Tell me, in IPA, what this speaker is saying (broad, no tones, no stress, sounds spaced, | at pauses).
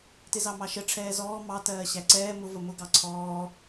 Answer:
t ɪ z ɑ m ɑ ʃ ə ʈ͡ʂʰ ɛː z ɔː m ɑ t ɜː ɕ æ ǀ ɛː m ʊ v ə m ʊ ɡ ɑ ǀʰ ɔː